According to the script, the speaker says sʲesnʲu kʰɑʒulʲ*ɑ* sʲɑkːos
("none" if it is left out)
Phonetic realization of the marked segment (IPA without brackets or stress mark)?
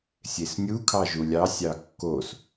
ɑ